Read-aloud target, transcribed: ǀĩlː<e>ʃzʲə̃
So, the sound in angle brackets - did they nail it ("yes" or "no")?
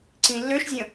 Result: no